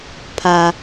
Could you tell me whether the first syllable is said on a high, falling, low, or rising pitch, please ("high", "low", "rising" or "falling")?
low